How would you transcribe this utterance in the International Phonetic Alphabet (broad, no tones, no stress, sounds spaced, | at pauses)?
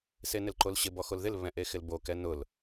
s e n ɪ l ǃ o l ɕ ɪ b ɔ x o l ð ɪ l β ɛ̃ ʔ e x ɪ l b o k ɛ n ʊ l